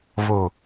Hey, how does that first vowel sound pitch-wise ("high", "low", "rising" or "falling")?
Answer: low